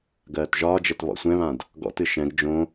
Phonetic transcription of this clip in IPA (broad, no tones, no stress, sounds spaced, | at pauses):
ɡ ɜː t ʒ ɒː d͡ʒ ɛ t β ɔ̰ sʷ ɛ̃ β ã d | ɡ ɔ̰ t ɨ ʃ ɛ̃ ɡ d͡ʒ õ